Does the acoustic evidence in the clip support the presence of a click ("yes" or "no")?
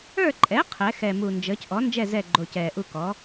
yes